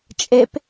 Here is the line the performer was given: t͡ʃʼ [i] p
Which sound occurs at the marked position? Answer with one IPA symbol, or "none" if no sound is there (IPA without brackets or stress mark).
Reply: e